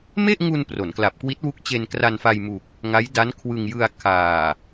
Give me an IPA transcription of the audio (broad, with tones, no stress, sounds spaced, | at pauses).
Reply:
m e˥˩ ʔ ŋ u˧ n p r o˩˦ n k l a˨˩ p̚ k w i˦˥ t̚ w u˦˥ k̚ t͡ɕ e˧ n k r a˧ n f a˧ j m u˨˩ k̚ | ŋ a˦˥ j d a˦˥ n kʰ w ɯ˧ ŋ j ɯ˧ a̯ kʰ aː˨˩